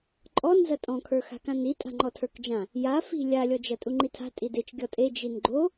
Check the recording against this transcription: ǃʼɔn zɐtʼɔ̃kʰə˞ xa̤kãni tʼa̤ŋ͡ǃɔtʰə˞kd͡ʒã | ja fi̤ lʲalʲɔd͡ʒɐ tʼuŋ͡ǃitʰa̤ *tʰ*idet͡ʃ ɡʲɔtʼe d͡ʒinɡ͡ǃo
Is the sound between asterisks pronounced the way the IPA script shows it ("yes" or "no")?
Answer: no